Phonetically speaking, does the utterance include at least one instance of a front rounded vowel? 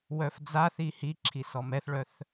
yes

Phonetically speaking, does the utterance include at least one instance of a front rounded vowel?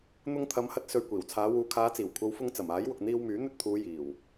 yes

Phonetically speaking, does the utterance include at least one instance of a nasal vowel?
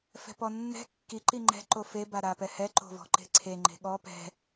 no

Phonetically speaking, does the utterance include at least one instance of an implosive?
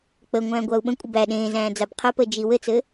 yes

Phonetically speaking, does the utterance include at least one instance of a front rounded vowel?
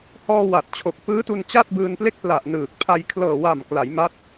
no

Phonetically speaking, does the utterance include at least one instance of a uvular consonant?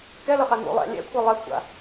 yes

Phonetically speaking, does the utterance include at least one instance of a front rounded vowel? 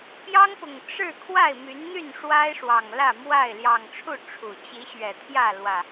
yes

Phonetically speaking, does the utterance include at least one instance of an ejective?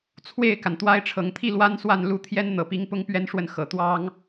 no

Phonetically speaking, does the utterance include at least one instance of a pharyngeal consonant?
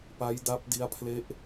no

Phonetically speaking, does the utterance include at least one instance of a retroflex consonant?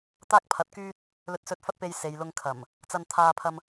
no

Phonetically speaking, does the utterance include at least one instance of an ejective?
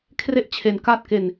no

